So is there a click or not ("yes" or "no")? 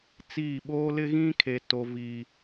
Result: no